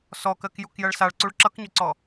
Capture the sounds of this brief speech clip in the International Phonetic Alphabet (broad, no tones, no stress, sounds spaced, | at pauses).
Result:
s ɔ k ɜ k j u k j ɜ ɭ s a ɭ ǀ u ɭ ǁ ʌ k ɲ ʏ ǀ ɔ